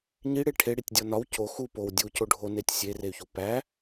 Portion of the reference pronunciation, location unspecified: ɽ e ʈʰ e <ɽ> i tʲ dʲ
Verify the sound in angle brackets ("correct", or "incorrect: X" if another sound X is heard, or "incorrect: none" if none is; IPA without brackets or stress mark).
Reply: correct